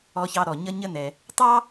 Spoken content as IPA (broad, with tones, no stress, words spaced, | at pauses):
ɔ˧çɑ˧ɾɔ˩ ɲʌ˥ɲə˥nɛ˩ | tˤɑ˥